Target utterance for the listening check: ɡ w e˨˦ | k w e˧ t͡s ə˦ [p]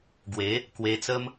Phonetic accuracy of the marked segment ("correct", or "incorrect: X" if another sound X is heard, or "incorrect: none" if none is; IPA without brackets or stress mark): incorrect: m